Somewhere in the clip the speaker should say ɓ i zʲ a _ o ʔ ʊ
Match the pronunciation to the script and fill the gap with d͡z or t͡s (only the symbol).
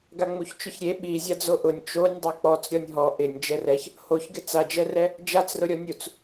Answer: d͡z